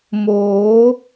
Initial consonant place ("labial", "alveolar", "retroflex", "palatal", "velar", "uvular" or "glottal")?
labial